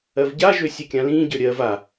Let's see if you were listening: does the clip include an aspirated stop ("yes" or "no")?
no